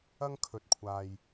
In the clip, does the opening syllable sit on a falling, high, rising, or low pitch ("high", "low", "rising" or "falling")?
high